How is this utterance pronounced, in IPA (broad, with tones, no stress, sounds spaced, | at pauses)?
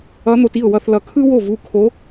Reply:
ʌ˧˥ n̪ o˧ t i˥˩ ʊ̯ w ʌ˧ θ l ʌ˧ kʰ ɯ˥ w o˥˩ v u˥˩ kʰ o˧˥